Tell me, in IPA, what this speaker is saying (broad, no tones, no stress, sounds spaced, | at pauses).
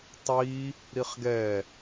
tˤ i | ɾ i χ ɡ ɛ